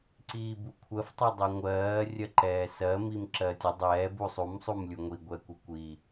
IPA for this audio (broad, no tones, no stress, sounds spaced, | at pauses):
ǀ iː b u kʷʰ ɜ f tˤ ɛ dˤ i ŋʷ ɜː rʲ ɜ ǃ ɛː s ɜ m i m ǁ ɜ tʲ ə dˤ ɛː b u sˤ u m sˤ u m lʲ u ŋʷ i ɡʷ ɛ kʷ ə kʷ i